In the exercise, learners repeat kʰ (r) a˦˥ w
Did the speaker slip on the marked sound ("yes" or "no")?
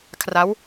no